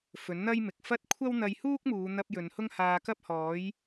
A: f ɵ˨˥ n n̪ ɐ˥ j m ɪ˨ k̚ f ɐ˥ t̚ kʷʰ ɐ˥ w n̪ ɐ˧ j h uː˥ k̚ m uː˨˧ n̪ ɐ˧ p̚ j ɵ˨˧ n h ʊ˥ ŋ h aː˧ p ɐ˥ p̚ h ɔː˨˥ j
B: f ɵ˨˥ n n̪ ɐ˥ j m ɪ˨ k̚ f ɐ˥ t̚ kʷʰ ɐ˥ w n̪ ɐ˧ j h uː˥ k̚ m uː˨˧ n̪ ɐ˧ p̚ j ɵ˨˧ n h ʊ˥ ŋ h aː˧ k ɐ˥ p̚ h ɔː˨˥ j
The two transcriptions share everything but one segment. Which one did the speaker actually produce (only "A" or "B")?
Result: B